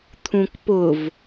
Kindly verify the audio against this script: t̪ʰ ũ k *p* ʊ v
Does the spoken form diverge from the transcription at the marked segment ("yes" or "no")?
no